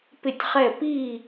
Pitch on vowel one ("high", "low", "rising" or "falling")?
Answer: falling